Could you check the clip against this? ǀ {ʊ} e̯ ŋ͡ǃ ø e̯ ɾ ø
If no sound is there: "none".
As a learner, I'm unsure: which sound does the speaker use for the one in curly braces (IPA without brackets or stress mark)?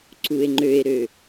u